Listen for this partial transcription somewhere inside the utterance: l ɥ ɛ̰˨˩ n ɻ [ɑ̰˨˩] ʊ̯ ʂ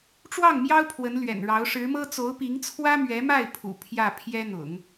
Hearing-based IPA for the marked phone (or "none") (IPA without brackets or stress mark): ɑ˧˥